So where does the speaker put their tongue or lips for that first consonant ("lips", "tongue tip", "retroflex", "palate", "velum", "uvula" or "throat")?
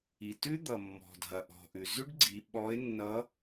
tongue tip